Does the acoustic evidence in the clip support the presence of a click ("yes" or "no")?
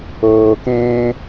no